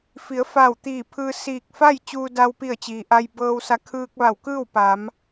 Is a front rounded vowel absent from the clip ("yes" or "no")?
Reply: yes